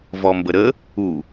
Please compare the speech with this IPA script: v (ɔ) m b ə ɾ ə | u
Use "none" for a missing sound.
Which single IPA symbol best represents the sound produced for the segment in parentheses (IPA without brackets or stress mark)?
ɔ